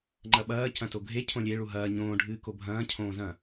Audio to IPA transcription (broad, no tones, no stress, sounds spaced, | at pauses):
ŋ͡ǃ ɐ ɓ ɐː c ɐ̃ t o ɡʱ e cʰ õ lʲ e ɭ u ɦ ɐː ɲ õː ɖʱ ɨː k o bʱ ɐ̃ː cʰ õː z ɐ̃